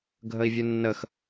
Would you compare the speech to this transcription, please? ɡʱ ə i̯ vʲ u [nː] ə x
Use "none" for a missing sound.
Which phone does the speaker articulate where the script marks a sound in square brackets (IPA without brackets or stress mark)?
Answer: nː